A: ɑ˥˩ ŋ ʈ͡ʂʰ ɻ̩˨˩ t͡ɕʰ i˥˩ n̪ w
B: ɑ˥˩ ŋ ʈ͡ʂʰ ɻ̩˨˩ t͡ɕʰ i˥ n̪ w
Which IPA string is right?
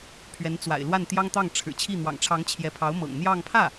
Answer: A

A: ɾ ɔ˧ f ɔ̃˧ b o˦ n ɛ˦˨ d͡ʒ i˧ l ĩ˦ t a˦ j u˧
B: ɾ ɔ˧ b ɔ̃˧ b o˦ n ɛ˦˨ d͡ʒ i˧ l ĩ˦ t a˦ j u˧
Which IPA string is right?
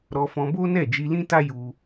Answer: A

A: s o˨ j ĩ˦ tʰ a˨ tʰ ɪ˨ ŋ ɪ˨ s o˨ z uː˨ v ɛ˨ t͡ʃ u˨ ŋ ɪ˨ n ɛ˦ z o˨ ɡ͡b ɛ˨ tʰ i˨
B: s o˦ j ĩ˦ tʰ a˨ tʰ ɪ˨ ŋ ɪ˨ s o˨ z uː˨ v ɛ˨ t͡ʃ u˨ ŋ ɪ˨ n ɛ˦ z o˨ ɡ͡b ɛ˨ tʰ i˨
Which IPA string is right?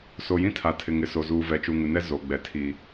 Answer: A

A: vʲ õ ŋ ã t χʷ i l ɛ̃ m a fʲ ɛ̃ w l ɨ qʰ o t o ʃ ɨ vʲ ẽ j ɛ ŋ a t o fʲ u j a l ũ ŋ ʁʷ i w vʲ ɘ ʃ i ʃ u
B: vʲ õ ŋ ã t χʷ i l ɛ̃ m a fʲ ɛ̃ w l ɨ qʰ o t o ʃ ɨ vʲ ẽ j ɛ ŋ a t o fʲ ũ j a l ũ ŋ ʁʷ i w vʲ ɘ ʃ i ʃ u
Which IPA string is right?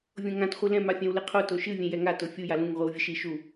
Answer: A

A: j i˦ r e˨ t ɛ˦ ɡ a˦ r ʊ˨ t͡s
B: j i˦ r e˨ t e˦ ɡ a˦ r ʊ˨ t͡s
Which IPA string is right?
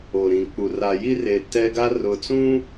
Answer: A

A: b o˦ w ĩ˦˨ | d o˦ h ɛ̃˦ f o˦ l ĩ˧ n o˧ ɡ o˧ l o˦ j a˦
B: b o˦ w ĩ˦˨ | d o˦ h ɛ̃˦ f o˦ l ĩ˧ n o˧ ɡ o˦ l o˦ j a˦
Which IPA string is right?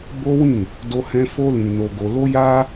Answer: A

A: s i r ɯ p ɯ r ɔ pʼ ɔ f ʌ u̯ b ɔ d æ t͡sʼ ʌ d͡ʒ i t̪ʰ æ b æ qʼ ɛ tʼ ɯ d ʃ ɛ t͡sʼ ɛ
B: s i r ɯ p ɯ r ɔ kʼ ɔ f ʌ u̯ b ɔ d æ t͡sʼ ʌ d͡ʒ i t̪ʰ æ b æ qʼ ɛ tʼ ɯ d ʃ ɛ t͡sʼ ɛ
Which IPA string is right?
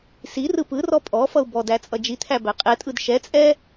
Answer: A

